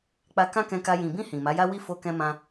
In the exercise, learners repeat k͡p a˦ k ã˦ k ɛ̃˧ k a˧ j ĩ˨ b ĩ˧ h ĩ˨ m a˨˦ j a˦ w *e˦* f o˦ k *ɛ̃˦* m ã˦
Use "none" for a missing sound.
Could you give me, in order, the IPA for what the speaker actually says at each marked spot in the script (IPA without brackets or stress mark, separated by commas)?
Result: i˦, ɛ̃˦